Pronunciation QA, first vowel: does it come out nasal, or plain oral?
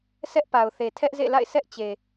oral